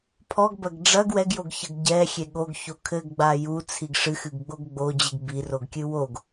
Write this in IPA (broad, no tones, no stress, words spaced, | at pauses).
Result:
pʰɔɡbɐɡ ɖ͡ʐɐɡ wɛɡjoɡçɐɡ ɟɛxʲe ɠoɡço kʰɘɡɡ͡ba jut͡sʰiɡ ʂɨxɨɡɡ͡boɡ ɡ͡bod͡ʑɨɡ biroɡkʲɨ woɡ